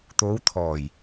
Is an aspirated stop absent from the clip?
no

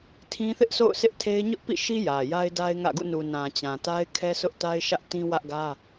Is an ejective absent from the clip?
yes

